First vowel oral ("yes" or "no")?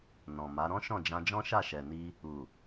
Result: no